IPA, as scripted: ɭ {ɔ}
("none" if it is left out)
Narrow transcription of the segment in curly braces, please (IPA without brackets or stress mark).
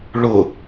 ʊ